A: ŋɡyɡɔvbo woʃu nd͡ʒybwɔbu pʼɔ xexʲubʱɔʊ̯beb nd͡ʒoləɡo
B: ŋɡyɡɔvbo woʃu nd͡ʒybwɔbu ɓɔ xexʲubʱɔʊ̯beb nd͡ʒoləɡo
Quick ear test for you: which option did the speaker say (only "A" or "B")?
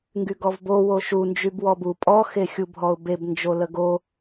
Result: A